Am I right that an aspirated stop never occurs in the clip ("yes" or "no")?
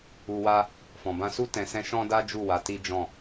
yes